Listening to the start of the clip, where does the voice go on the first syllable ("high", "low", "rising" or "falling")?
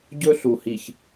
high